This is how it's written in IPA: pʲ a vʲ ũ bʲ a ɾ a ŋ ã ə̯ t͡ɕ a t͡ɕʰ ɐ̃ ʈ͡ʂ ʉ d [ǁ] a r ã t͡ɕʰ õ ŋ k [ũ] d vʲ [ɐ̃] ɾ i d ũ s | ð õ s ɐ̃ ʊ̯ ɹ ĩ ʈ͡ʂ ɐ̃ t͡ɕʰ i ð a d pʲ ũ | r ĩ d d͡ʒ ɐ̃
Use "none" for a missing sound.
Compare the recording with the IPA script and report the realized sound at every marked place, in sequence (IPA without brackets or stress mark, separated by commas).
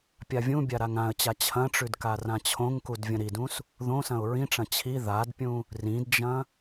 k, u, ɐ̃